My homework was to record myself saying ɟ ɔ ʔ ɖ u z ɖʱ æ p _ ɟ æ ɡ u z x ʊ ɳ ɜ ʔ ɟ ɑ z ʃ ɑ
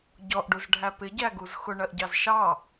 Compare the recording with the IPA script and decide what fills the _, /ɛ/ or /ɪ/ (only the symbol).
ɪ